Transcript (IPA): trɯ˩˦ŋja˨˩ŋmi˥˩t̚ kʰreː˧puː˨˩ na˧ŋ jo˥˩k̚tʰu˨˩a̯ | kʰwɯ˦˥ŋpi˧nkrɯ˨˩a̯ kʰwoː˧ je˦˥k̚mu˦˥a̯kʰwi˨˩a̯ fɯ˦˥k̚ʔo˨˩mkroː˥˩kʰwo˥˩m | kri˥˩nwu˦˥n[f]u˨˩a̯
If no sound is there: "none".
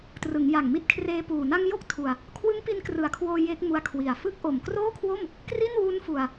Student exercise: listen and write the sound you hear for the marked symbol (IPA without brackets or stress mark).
f